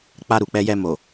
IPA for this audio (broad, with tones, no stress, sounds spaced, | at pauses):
k͡p a˧ ɾ u˨ k͡p ɛ˧ j ɛ˧ m o˨